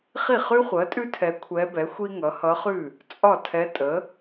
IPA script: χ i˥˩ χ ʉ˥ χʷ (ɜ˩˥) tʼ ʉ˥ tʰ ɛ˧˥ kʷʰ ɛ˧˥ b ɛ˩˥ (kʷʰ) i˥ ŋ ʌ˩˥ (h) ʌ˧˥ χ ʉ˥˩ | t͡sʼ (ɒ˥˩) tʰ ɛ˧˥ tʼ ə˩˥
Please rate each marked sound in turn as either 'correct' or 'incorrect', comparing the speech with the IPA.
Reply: correct, incorrect: xʷ, correct, correct

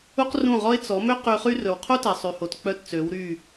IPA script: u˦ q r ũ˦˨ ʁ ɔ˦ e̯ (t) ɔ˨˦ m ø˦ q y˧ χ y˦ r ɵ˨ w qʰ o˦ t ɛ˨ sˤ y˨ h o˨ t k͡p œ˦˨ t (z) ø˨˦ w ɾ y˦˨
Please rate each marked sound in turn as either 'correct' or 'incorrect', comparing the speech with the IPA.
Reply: incorrect: t͡s, incorrect: t͡s

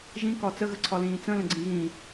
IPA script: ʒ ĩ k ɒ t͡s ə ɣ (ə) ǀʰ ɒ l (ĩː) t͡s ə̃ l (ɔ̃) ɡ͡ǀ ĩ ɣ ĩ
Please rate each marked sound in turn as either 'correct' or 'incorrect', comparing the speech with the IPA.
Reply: correct, correct, incorrect: ə̃

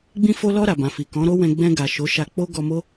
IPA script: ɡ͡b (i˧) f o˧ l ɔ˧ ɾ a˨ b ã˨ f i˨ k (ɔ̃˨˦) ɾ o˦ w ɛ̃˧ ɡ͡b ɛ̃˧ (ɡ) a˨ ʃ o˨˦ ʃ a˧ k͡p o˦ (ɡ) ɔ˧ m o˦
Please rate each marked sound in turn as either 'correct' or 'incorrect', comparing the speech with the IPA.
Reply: incorrect: ĩ˧, correct, correct, correct

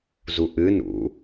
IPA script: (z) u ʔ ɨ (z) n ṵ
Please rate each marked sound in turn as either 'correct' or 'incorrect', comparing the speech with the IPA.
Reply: correct, incorrect: none

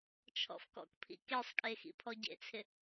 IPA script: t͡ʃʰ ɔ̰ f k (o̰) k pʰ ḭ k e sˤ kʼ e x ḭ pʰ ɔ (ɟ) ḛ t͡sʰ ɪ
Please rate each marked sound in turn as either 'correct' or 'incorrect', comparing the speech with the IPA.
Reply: incorrect: ɔ̰, correct

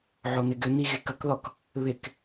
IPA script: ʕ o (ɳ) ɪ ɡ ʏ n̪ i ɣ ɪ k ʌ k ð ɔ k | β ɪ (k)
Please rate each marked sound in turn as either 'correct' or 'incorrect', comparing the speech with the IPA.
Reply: incorrect: n̪, correct

